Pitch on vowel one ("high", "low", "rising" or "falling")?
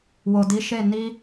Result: low